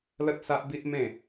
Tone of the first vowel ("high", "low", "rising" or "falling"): high